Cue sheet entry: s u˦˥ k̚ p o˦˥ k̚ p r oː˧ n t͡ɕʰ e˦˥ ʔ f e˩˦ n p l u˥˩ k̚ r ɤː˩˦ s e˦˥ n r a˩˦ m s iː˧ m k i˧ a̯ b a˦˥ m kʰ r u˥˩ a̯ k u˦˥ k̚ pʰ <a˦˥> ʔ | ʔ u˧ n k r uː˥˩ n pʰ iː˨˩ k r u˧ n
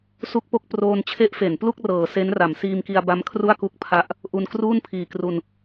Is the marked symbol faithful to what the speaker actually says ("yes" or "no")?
yes